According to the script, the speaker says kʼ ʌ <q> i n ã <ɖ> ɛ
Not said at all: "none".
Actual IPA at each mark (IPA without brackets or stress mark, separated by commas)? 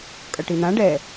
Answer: ʈ, ɖ